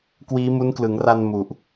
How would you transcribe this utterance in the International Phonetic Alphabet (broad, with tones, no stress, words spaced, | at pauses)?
kwiː˦˥mu˦˥nklɯ˩˦ŋra˧n mu˨˩ʔ